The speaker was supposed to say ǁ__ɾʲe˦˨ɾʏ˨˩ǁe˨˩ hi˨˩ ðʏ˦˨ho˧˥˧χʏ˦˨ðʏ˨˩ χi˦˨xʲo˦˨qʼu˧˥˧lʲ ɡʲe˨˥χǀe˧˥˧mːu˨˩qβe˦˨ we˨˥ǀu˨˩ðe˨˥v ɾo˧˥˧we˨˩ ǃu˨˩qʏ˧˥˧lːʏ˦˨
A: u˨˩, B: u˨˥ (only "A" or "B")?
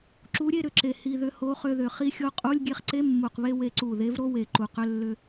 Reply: B